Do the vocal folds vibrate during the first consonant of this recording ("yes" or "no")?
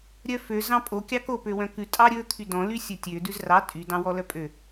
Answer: yes